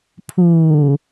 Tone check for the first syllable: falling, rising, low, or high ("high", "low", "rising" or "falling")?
low